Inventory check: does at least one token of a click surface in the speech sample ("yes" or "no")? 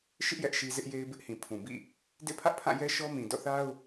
no